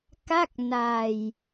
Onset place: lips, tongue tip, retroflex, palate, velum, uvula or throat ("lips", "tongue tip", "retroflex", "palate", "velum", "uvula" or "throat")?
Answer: velum